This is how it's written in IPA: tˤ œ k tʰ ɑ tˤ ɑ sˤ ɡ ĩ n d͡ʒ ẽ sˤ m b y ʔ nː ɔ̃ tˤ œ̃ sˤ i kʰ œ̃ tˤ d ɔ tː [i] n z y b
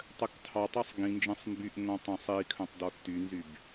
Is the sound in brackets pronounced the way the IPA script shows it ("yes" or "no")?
no